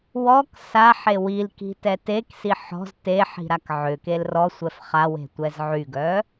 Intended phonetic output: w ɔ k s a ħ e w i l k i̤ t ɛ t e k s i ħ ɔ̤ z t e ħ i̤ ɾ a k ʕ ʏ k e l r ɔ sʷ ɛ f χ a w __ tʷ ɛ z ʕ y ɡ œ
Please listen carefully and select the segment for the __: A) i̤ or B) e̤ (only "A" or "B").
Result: B